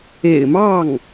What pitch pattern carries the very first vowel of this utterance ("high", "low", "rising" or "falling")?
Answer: low